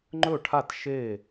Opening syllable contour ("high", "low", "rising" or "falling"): falling